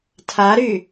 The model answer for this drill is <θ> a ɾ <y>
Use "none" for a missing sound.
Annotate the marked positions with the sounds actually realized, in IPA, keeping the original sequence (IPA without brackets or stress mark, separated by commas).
tʰ, y